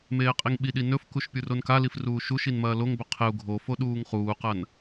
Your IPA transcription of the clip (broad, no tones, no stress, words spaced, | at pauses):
meːqʼiŋɓiɗi nɵfkuʃ pʲuronkalif ruːʃuʃin mɐːloŋbɵ qʰeu̯ ɡʱofo ɗuːŋχuːqɐn